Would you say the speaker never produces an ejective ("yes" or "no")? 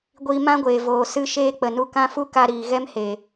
yes